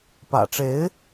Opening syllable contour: low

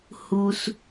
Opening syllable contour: low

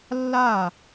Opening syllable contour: falling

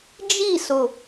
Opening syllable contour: falling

